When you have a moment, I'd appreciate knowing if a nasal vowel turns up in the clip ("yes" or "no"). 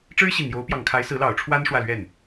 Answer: no